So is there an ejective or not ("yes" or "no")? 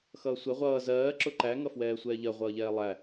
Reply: no